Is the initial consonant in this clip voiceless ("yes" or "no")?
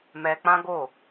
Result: no